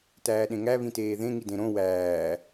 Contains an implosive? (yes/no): yes